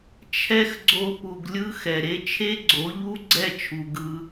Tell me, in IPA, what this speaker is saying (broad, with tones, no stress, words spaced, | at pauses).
t͡ʃʰɛ˦xɡ͡ǀo˧pu˨ɡlʲɯ˦ xɛ˨ɾe˦ t͡ʃʰe˦ɡ͡ǀo˨˦ʎu˦ ɡ͡ǀɛ˦˨t͡ʃʰu˨ ɡɯ˧